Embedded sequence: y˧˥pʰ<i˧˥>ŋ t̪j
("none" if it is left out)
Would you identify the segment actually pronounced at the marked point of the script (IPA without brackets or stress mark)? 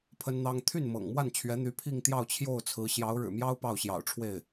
i˥˧